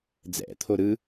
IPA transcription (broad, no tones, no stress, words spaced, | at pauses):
d͡zɛ̰t̪ʰo ɾɯ